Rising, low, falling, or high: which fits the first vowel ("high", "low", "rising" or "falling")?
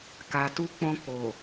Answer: low